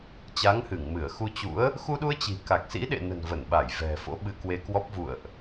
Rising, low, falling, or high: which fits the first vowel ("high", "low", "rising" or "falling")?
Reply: rising